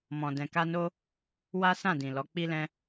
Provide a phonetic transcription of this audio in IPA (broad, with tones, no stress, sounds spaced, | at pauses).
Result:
m ɔ̃˨ d ɛ̃˨ k a˧ n o˧ | w a˦ s ã˦˨ d ĩ˨ l ɔ˨˦ k͡p i˧ l ɛ̃˧